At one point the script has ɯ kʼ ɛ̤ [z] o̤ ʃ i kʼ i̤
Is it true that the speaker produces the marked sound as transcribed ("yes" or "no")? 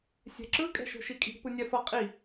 no